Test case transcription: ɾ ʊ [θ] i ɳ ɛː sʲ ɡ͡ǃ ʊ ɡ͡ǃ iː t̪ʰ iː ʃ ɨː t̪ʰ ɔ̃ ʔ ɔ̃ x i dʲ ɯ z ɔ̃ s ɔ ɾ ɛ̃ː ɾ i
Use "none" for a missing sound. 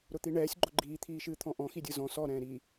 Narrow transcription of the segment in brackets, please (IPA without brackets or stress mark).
t̪